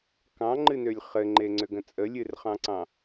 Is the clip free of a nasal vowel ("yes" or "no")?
no